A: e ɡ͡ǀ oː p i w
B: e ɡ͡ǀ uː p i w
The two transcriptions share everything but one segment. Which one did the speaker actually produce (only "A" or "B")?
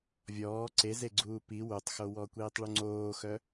B